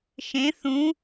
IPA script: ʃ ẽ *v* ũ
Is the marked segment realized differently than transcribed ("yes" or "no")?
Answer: yes